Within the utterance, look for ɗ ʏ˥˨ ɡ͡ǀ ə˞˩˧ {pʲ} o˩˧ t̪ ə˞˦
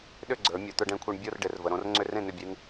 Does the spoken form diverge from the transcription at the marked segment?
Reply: yes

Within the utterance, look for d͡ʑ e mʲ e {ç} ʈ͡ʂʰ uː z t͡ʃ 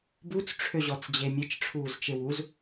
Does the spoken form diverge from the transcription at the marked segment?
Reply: yes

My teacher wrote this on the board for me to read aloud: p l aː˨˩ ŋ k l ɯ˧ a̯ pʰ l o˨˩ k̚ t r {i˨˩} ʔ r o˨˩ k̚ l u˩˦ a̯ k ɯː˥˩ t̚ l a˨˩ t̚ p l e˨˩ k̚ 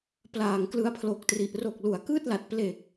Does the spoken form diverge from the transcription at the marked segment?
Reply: no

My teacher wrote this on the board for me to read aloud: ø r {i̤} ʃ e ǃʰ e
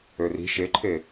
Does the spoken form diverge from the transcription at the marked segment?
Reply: no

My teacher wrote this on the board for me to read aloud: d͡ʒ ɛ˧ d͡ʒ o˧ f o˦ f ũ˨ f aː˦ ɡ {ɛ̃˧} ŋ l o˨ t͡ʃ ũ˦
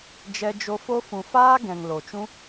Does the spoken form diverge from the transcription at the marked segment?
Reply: yes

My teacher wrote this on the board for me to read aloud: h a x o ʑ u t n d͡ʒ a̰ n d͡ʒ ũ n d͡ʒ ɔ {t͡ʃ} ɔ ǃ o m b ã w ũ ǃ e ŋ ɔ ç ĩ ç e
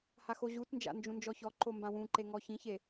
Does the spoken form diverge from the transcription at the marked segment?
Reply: yes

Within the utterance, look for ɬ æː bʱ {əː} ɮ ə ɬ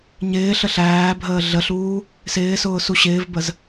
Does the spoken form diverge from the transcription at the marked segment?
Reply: no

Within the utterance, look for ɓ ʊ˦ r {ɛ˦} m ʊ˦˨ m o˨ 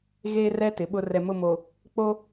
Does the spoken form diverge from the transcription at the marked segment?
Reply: yes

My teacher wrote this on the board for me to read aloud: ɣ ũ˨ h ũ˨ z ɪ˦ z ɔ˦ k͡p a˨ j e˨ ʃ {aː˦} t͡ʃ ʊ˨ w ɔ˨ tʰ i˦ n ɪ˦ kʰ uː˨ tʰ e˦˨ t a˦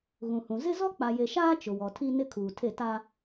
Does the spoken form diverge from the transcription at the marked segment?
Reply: no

